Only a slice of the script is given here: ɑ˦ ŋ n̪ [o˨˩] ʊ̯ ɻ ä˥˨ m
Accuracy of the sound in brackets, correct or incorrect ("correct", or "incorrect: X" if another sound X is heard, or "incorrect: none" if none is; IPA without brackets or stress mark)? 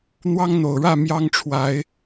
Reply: correct